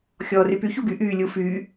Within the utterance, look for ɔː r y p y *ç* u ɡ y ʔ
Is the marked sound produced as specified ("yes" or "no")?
yes